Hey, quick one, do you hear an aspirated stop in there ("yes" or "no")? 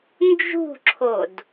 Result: yes